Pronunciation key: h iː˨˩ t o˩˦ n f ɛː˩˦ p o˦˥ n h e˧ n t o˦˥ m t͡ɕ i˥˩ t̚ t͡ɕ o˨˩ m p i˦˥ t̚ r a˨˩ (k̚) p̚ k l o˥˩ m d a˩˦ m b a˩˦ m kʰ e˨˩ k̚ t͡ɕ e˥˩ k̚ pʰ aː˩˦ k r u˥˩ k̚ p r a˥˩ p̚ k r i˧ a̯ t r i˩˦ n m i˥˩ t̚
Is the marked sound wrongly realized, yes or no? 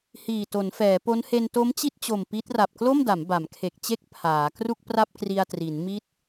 yes